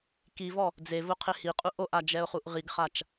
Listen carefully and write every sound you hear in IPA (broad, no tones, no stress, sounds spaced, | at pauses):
k i v ɔ | d͡z e v ʊ qʰ ɪ h i qʼ u ʔ o ʔ a d͡ʒ ɛ ʊ̯ χ u ʔ ʁ i ɡ χ a t͡ʃ